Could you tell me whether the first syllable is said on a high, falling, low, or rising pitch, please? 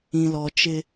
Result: low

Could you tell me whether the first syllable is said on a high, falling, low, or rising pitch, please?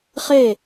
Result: falling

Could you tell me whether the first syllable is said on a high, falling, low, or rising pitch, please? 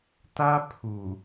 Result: high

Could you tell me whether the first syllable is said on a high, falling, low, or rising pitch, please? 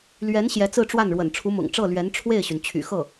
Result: rising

